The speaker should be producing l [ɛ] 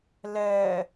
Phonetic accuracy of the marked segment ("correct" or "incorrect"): correct